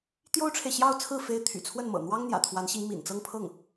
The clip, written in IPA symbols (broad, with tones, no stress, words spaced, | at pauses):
t̪jo˥ʊ̯ʈ͡ʂʰe˨ɪ̯ɕjɑ˥˧ʊ̯t͡sʰɹ̩˥˩ fe˥ɪ̯ t̪ʰy̰˨˩t͡sʰwə˥˩nmɤ̰˨˩ n̪wɑ˥ŋ n̪jä̰˨˩t̪ʰwa˧˥nɕi˧˥ŋ mḭ˨˩nt͡sɤ˥˧ŋpʰɤ˥˩ŋ